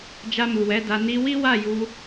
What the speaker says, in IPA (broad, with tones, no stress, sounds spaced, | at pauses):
d͡ʒ a˧ m u˨ w ɛ˨˦ d a˧ n i˧ w i˦ w a˦˨ j u˧